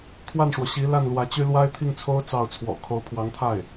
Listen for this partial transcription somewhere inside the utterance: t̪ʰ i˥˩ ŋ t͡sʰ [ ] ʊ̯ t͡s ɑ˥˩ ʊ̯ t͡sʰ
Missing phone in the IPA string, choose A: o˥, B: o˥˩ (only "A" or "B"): A